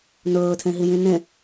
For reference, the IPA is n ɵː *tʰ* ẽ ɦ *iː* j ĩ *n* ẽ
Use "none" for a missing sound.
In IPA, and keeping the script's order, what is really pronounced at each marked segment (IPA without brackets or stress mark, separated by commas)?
tʰ, i, n